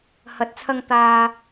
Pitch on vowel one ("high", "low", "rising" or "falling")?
rising